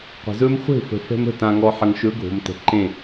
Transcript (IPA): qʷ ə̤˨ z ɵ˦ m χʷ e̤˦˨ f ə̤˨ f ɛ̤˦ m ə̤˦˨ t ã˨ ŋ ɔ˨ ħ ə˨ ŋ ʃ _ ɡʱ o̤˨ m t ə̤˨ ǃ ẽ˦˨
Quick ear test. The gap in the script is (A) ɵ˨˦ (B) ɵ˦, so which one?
A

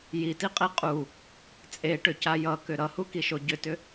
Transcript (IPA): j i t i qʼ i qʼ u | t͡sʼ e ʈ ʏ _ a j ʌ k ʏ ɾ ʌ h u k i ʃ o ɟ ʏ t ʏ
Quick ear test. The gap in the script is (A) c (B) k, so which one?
A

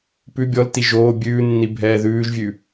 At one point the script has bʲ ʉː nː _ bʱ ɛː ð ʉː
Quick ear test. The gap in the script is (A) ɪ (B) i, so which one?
B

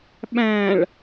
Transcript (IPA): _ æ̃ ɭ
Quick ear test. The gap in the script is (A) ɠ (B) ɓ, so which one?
B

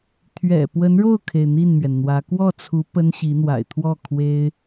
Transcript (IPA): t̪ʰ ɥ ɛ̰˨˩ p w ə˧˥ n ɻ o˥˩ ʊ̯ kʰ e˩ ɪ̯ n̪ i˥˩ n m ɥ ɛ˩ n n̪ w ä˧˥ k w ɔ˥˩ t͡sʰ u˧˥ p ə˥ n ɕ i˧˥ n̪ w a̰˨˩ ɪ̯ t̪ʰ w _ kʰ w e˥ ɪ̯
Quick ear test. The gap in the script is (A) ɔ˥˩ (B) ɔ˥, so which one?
A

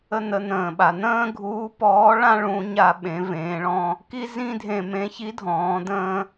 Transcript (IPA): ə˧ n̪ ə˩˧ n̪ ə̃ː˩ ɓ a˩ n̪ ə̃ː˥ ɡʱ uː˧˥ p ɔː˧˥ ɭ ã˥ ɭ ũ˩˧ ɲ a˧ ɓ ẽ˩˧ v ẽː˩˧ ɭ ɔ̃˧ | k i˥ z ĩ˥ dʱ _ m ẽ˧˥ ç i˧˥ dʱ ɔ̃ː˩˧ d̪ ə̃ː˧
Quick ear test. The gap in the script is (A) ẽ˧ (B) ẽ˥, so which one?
A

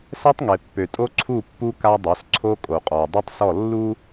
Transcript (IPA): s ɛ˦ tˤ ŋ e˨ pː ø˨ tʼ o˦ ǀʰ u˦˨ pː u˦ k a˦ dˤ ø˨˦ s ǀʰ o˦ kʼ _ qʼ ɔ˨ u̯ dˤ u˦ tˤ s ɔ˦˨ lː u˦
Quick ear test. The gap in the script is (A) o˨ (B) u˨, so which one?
A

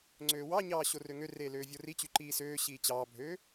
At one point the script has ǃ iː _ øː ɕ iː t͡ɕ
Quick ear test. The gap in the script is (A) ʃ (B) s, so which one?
B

